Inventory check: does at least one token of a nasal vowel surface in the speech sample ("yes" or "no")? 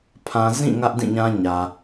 yes